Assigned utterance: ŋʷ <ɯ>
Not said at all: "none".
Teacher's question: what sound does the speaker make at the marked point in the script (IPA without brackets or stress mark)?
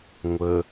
ə